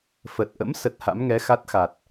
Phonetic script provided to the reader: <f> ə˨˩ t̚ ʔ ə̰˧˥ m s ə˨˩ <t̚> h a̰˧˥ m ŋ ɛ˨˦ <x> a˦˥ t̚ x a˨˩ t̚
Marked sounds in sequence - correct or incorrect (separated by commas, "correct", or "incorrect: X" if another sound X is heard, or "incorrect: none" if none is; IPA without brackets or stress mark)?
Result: correct, correct, correct